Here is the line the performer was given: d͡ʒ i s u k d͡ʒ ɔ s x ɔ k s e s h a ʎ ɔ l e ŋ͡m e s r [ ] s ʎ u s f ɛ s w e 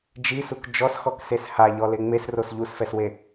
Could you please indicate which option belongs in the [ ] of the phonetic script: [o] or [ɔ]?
o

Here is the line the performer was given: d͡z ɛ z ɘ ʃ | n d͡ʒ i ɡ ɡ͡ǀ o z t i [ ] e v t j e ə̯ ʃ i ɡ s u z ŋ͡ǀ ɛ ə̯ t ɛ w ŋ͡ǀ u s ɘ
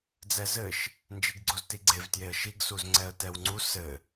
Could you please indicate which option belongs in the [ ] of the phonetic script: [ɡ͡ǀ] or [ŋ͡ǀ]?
ɡ͡ǀ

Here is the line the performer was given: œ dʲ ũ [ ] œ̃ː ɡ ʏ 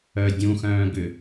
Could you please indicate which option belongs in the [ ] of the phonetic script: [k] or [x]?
x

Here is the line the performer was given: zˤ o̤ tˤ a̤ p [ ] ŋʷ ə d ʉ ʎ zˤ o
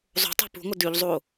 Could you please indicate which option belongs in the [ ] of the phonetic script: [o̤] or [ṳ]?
ṳ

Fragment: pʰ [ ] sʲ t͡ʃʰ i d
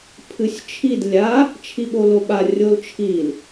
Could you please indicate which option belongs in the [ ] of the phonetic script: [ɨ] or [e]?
ɨ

